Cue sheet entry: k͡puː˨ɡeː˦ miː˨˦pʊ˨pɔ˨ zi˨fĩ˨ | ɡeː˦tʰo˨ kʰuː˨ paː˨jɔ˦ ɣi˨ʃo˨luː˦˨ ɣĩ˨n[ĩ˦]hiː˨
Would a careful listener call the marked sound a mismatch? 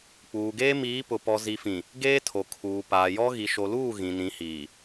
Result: yes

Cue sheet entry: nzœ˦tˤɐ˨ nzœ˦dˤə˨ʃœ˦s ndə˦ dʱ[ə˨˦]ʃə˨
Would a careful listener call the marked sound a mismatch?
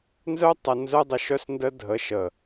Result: no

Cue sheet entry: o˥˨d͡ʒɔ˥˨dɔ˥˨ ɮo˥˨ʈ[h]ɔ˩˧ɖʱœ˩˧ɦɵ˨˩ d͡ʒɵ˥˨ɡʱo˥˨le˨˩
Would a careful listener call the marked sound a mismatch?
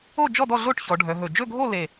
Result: yes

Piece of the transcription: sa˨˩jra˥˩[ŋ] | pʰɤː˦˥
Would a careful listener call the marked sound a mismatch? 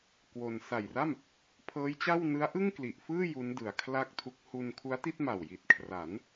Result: yes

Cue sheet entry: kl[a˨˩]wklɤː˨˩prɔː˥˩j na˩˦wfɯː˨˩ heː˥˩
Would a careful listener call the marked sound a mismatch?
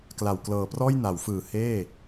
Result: no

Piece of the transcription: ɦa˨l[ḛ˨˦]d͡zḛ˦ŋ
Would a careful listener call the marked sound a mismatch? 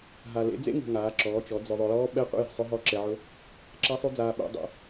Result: no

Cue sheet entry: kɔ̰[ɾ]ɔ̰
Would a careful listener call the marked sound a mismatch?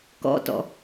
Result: yes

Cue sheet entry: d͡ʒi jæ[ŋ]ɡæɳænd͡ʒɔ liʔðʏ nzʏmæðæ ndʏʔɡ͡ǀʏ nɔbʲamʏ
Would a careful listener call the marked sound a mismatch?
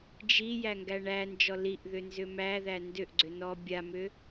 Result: no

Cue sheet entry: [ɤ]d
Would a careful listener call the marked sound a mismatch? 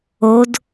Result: yes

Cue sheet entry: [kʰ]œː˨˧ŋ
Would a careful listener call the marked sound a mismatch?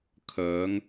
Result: no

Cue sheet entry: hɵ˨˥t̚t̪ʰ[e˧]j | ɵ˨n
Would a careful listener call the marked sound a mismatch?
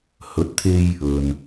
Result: no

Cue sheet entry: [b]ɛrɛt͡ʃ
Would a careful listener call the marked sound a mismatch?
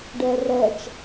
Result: yes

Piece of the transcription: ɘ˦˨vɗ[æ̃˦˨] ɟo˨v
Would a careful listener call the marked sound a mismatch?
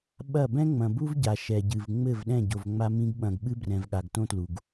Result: yes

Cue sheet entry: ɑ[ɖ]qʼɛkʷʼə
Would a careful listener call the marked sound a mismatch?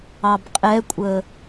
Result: yes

